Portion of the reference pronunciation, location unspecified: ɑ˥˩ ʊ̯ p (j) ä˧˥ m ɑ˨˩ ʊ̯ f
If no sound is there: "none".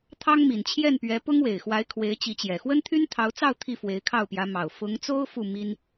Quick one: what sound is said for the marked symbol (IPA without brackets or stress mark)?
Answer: j